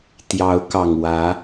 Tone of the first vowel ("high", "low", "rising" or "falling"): rising